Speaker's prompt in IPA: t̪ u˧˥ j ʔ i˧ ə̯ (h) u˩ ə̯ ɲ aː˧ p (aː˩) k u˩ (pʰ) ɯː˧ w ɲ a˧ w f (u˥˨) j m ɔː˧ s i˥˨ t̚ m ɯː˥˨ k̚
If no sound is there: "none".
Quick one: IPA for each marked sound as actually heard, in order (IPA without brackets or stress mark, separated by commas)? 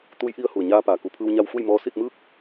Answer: h, aː˩, pʰ, u˥˨